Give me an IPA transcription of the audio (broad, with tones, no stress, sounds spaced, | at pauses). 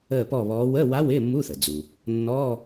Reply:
əː˥˨ p ɔ˥˨ β ɔː˧˥ w əː˧˥˧ w a˧˥ w ɪː˧˥˧ mː u˧˥˧ θ ə˩ d͡z u˩ | nː ɔː˧˥˧